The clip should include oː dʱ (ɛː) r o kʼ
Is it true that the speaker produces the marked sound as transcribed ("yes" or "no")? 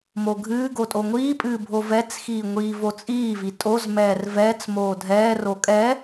yes